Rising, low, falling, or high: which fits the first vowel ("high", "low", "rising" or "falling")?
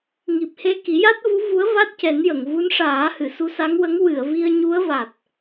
low